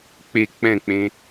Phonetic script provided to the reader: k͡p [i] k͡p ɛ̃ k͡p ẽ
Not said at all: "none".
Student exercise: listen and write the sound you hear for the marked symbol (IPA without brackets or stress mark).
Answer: e